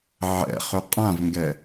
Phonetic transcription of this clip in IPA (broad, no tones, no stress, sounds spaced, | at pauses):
ʕ ɛ̰ χ ʏ qʼ ã v ŋ ɡ ɛ